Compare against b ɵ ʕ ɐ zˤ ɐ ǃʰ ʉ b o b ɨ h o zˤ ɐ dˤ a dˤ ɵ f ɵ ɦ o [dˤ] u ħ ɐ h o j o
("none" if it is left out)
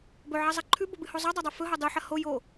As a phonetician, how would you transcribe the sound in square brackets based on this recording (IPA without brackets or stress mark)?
dˤ